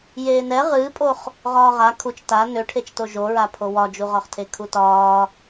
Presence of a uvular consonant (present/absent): present